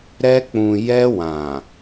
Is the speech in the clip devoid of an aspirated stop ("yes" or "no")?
yes